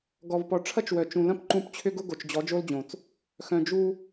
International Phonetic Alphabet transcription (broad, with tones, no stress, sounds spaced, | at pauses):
ɡ ɔ˨ v p ɔ˨ ʈ͡ʂʰ ɐ˦ t͡ʃ w œ˨ t͡ʃ ũ˨ l ɐ̃˦ p ǃ ũ˦ p t͡ɕʰ ʏ˦ ɡ ʊ˦ ɡ o˨ t͡ʃ d͡ʑ ɔ˨˦ d͡ʒ o˦ l d͡ʑ õ˨ t͡s | x œ̃˨ d͡ʒ u˦